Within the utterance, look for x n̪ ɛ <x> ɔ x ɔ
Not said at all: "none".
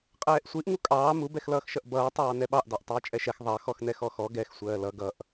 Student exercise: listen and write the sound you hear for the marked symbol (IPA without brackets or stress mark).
x